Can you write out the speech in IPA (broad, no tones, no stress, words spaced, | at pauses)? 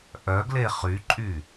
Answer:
ʔœɡle χyǃʼy